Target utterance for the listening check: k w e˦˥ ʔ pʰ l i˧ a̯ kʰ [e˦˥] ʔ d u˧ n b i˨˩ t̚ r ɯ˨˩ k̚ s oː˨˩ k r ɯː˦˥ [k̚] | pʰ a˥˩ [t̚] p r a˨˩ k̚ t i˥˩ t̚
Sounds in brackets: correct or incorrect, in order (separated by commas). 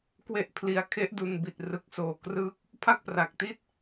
correct, correct, incorrect